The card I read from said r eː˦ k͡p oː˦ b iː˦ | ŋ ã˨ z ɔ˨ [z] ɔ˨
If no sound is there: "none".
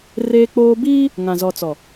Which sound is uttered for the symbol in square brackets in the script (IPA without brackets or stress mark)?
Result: t͡s